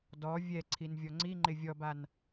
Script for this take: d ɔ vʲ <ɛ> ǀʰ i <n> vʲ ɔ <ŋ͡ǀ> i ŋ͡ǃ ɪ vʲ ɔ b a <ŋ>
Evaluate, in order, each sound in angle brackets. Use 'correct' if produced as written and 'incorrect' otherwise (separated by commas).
correct, correct, correct, incorrect